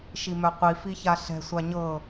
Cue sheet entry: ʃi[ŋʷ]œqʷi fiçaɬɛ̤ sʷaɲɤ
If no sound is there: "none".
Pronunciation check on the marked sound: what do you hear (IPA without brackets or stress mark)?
m